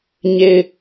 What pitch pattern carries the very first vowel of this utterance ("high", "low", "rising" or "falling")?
low